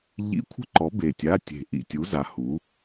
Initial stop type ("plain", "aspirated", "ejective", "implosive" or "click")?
aspirated